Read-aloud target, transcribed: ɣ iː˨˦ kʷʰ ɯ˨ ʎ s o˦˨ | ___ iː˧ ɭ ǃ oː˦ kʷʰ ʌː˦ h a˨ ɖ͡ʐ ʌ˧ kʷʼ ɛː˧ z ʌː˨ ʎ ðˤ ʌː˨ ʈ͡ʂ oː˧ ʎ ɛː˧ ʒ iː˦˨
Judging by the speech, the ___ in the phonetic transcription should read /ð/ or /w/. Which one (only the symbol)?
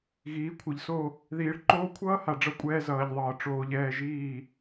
ð